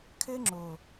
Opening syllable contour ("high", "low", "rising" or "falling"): high